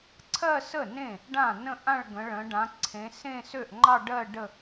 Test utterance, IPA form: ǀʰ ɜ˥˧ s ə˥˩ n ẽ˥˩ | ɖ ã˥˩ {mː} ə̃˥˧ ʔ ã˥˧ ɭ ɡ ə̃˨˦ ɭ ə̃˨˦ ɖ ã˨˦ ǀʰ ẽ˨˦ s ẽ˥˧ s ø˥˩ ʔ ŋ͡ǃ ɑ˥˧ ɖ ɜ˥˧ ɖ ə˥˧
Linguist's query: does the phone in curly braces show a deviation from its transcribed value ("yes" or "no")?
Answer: yes